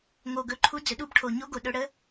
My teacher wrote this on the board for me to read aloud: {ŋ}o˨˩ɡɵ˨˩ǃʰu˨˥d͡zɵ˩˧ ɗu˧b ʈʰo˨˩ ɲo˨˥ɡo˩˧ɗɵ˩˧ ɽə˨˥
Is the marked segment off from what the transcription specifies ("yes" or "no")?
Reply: no